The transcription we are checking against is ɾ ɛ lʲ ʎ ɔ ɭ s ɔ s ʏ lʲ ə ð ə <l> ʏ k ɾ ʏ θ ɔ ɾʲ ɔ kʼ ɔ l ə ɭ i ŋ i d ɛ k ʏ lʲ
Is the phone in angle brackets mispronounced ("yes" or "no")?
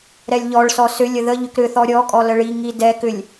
yes